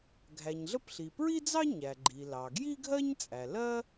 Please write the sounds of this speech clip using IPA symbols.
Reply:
ɡʱ æ˩ ɲ ɮ ə˥ p ɬ i˩ p ɹ i˥ d͡z ɑ˥ ɲ æ˩ ɡ͡ǃ i˩ l ɑ˩ ɡ j i˥ ɡʱ ɜ˥ ɲ t͡sʼ æ˩ l ɜ˥

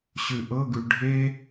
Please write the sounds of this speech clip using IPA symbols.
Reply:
ɕ ʉ ʔ ɤ ɡ ʉ ɖʱ e

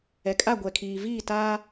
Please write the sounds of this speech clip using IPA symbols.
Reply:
ɛ˨ kʼ a˦˨ ɡʷ ɛ˨ kʰ iː˨ v iː˦˨ t aː˦

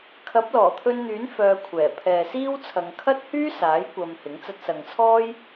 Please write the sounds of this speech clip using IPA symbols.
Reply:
kʰ ɐ˨˥ p̚ l ɔː˨˩ t̪ʰ ɵ˧ n n̪ yː˨˥ n f œː˧ kʷʰ ɛː˨˩ pʰ ɛː˨ s iː˥ w t͡sʰ ɐ˨˧ ŋ kʰ ɐ˥ t̚ h yː˥ s aː˨˥ j kʷ ɐ˧ m h ɪ˨˥ ŋ t͡s ɐ˧ t̚ s ɐ˨ ŋ t͡sʰ ɔː˥ j

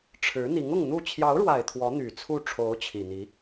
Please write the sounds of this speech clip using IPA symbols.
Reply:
ʈ͡ʂʰ ɻ̩˧˥ n̪ i˧˥ ŋ ʊ˥˧ ŋ n̪ u˥˩ t͡ɕʰ j ɑ˧˥ ʊ̯ ɻ w a˨˩ ɪ̯ t̪ʰ w ɔ˧˥ n̪ y˨˩ t͡sʰ u˥˩ ʈ͡ʂʰ o˧˥ ʊ̯ t͡ɕʰ i˨˩ n̪ i˧˥

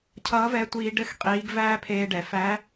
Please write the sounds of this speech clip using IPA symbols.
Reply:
cʰ ʌː˧˥ v ɛ˧˥ tʷ iː˧ ɖ ɘ˥ x qʼ iː˧˥ ɡ v æː˥ pʰ eː˧ ɖ ɛ˩˧ f æ˧˥

